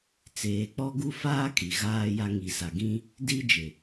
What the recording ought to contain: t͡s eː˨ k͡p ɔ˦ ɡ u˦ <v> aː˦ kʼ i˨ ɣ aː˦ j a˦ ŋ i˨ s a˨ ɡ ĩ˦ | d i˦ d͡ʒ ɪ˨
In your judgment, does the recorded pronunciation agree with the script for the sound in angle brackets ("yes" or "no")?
no